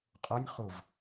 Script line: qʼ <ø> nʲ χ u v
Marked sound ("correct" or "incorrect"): incorrect